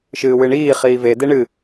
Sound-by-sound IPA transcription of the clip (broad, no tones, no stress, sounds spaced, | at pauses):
ʃ ɨː w ɨ ɳ iː χ iː v e d e ɳ ɨ